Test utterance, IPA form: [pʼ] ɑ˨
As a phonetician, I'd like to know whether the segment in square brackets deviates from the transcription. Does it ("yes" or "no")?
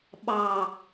yes